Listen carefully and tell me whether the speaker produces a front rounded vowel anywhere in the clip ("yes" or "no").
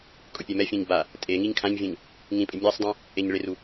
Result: no